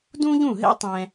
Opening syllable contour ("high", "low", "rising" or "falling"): high